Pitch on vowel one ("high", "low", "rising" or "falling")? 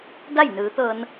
falling